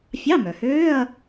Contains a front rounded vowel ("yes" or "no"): yes